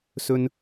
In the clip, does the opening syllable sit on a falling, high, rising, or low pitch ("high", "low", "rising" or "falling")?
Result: low